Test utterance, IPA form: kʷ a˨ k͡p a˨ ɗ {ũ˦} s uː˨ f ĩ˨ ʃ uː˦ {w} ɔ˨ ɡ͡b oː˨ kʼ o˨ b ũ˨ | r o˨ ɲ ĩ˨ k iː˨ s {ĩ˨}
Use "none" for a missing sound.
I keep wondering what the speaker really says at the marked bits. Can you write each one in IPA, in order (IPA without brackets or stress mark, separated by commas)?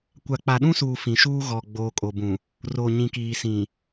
ũ˦, ɣ, ĩ˨